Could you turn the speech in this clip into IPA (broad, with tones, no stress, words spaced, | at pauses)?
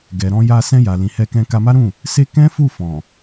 ɡɛ˨ɾɔ̃˧ja˧ sɛ̃˧ja˨lĩ˨ hɛ˧kɛ̃˧ka˧ma˦ ɾũ˦˨ | se˦ kɛ̃˦fu˦˨fɔ̃˨